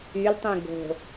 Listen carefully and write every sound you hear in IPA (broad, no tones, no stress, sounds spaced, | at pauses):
y l tˤ ũ ɡ o̤